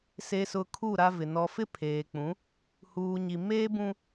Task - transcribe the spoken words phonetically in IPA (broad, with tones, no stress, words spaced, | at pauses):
se˨sʊ˨ kʰu˦˨ɾa˦vɪ˨ nɔ˨fɪ˦ pʰeː˨k͡pũ˨˦ | huː˨ɲi˨ meː˦bũ˦